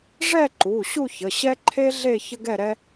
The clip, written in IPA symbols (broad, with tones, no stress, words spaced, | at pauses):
ʐɛ˥˧ǃu˩˧˩ ɕu˥˧çə˩˧˩ ɕɛ˥ǃʰe˥ɮe˥˧ çə˥ɡɛ˥˧ɾɛ˥